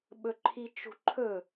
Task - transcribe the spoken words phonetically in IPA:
ɓ ɵ ǃʰ i t͡ʃ ṳ ǃʰ ɵ

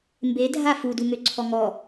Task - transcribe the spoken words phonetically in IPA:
m b e dʱ a f u d u ŋ ø ǀʰ ɔ ŋ ɔ

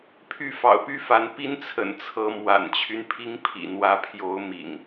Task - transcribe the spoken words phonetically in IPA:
pʰ y˥˨ f ɑ̰˨˩ ʊ̯ p y˦ f a˨˦ n p i˦ n t͡sʰ ə̰˨˩ n t͡sʰ ɤ˨˦ m w a̰˨˩ n t͡ɕʰ y˦ n pʰ i˦ ŋ pʰ ḭ˨˩ n̪ w ä˨˦ pʰ j o˨˦ ʊ̯ m ḭ˨˩ ŋ

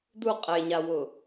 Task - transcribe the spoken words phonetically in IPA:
d u qʼ e ɲ a w ʊ

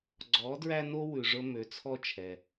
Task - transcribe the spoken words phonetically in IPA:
ɡ͡ǀ ɔː˩˧ d ɹ æ˧ n o˧ w ʉ˩ ʐ ɵ˧ m ø˩˧ t͡sʰ ɔ˧ t͡ʃʰ ɛ˩

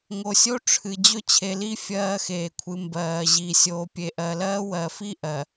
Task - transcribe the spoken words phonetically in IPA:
ŋ o˨ sʲ o˦ ʈ͡ʂʰ ɨ˨ d͡ʑ ɵ˦ t͡ɕʰ e˨ l i˦ fʲ ɜː˦ x eː˨ kʷʰ ɨ˨ m b ɜː˨ ʑ i˨ sʲ oː˨ pʲ e˨ ʔ ɜ˨ l ɜː˦ w ɜ˨ f i˦ ʔ ɜ˨

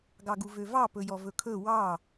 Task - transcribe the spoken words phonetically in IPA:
ɡ ɑ ɡ u v ø v ɑ p ɵ j ɔ v ɵ kʰ ɵ w ɑ

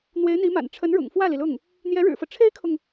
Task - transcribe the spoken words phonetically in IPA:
n̪ w e˧˥ ɪ̯ n̪ i˧˥ m a̰˨˩ n ʈ͡ʂʰ ə˧˥ n ɻ ʊ̰˨˩ ŋ f w ä˥˩ l i˩ l ʊ˥˩ ŋ | n̪ j ɛ˧˥ ɻ ɻ̩˨˩ f ɤ˦ ʈ͡ʂʰ e˥ ɪ̯ kʰ ʊ˨ ŋ

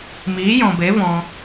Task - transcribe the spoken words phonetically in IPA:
m iː˨˦ j ɔ̃˨ b e˨˦ v ɔ̃˧

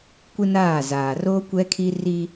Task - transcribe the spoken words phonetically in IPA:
kʷ ɪ˦ n aː˦˨ z aː˨ r oː˦ kʷ ɛ˦ kʰ i˦ r i˦

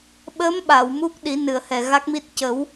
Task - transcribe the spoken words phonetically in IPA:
ɓ ə˧˥ m ɓ a˨˩˨ w m u˦˥ k̚ ɗ i˨˩˦ n ɨ˨˩˨ ə̯ h ɛ˨˩ ɣ a˦˥ k̚ m i˦˥ t̚ c ə˨˩˦ w

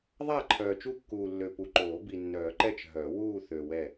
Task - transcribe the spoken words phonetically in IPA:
ðˤ a˦˨ ǃʰ œː˨ t͡ʃ u˦˨ kː uː˨ lː ø˨ p u˨ ǃ oː˨˩˦ b i˨ nː œː˨˩˦ ǃ ɛ˦˨ t͡ʃ ɦ œ˨˩˦ w uː˦˨ θ ø˨ w ɛ˦˨

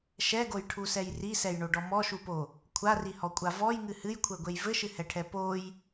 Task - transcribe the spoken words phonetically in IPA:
ʃ ɛ ɡ o j ʈʰ u s ɛ j r i s ɛ j ɳ o ɖ ɔ m ɔ ʃ u p o | kʷʰ a r i h ɔ kʷʼ a v ɔ j ŋ ɨ h ɨ j kʷʰ ɛ ɡʷ e j v ɘ ʃ ɨ h ɛ ʈʰ ɛ p o j

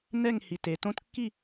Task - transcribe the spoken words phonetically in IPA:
n ɛ˥˧ ŋ h i˨ t e˨ t õ˦˥ t kː i˥˧

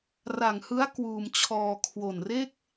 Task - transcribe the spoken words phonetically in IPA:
r a˨˩ ŋ h ɯ˦˥ a̯ k w uː˧ m t͡ɕʰ ɔː˧ kʰ w o˨˩ n r e˥˩ k̚

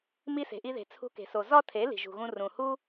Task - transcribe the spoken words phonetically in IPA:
m i˧ s e̤˨ ʔ i˧ ð e̤˨ t͡sʰ ṳ˧ k e̤˨ s o˨ z ɒ˦ tʰ e˨˦ l i̤˨ ʒ ṳ˨ ɣ ũ˧ r ũ˨ h u˦

